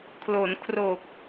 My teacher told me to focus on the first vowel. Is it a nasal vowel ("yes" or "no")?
no